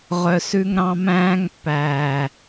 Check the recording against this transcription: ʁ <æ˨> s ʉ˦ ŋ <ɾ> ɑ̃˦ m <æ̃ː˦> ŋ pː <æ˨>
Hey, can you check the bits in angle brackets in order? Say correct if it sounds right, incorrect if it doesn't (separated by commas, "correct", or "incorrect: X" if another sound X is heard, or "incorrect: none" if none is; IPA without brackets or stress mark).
incorrect: œ˨, correct, correct, incorrect: æː˨